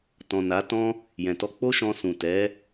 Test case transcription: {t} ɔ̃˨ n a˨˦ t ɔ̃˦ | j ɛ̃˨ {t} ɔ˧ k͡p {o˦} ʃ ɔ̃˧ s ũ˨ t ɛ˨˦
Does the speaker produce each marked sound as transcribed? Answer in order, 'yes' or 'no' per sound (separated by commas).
yes, yes, yes